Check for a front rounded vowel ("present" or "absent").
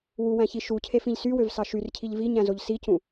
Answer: present